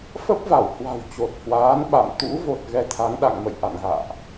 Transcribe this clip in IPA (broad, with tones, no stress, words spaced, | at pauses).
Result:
fə˦˥p̚va˧˩whwa̤˨˩w t͡ɕo˨˩t̚hwaː˨˦n ɓa̰˧˨mt̪ṵ˧˥ vo˨˩t̚ ɣɛ˧t̪ʰa˨˦ŋ ɗa̰˧˨ŋmə̰˧˨jʔa̰˧˨nɣa̰ː˧˨ʔ